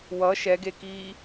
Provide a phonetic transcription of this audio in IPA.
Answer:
wʌ ʃɛɡekiː

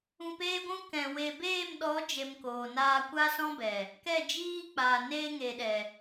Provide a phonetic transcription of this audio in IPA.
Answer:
ũ˧peː˦ɡʷũ˦ kɛ̃˨ we˨beː˦˨m ɗɔ˨˦d͡ʒe˨m koː˨naː˧ kʷa˦sɔ̃˦bɛ˨ | kɛ˦˨d͡ʒiː˦k͡paː˨ neː˧ŋe˨ɗɛ˨

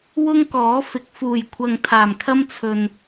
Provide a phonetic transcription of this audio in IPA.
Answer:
wʊ˥ŋkɔː˨˥fɪ˨k̚ fuː˨˩jkʷʰɐ˨ŋ t̪ʰaː˨˩mkʰɐ˥mt͡sʰɵ˨n

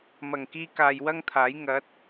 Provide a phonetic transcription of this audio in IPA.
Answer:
mɐ˨˩ŋkiː˧ kaː˨j wɐ˥ŋt̪ʰaː˨˥j ŋɐ˨˥t̚

